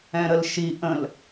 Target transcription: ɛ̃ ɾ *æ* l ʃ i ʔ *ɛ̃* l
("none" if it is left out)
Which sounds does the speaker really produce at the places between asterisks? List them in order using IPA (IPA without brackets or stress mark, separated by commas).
ə, ə̃